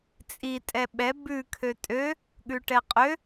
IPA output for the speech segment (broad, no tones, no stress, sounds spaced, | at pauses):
t͡sʼ i tʼ ɛ ɓ ɛ b ʉ kʰ ø tʼ ø | ɠ ʉ ʈ ɛ qʼ ø